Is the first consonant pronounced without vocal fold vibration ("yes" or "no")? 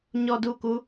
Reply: no